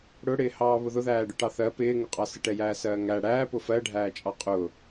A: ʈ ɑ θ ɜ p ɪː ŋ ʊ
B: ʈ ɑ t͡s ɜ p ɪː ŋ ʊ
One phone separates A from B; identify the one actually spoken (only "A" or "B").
A